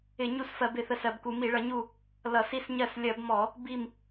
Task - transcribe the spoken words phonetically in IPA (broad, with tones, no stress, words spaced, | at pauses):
ɪ˧˩˧ɲu˦˨sfɜ˧˩˧b ɪ˦˨θə˦˨sɜ˧˩˧bku˧˩˧ mi˧˩˧ɭʌ˧˩˧ɲu˦˨ | lʌ˧˩˧si˦˨sɲɜ˦˨s lʲɜ˧˩˧bmɔ˧˩˧ | bi˦˨m